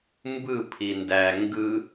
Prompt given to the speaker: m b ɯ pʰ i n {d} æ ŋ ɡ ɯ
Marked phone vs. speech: correct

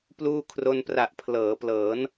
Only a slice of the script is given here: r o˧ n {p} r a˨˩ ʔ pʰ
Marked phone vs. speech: correct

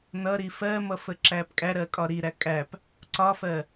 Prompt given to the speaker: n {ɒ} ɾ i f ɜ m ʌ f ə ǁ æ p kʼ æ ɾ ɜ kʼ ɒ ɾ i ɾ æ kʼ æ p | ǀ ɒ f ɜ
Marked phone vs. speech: incorrect: ʌ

